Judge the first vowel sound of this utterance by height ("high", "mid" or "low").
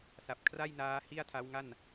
low